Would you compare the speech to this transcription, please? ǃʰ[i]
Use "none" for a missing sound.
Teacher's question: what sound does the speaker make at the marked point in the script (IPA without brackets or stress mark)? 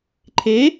e